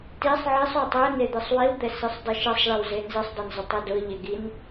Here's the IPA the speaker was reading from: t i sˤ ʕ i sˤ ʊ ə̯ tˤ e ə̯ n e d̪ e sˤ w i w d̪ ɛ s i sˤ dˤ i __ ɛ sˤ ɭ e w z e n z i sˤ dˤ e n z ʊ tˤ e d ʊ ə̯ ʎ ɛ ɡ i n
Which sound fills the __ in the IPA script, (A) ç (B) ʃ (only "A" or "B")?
B